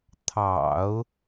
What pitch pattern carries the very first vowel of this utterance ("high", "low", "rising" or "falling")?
low